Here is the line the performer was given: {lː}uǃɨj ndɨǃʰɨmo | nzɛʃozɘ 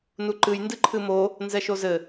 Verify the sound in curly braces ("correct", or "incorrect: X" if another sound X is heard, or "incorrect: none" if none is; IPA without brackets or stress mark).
incorrect: n